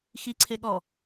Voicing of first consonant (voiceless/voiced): voiceless